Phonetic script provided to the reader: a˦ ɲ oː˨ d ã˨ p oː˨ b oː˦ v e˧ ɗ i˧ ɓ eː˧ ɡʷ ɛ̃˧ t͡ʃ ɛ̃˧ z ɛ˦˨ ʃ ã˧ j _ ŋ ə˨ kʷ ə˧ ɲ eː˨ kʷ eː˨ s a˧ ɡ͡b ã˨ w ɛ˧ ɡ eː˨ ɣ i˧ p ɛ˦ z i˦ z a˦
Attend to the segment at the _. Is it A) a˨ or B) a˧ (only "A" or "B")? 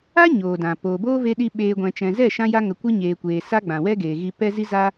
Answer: B